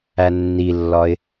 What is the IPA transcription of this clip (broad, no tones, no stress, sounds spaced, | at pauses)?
æ nː i lː ɒ ɪ̯